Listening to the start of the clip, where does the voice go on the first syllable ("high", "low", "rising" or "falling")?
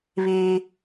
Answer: high